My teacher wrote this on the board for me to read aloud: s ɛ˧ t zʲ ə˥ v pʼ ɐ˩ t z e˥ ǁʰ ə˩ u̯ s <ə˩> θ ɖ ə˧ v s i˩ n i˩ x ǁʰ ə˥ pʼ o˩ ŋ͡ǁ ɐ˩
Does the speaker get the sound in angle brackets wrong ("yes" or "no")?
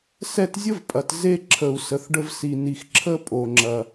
no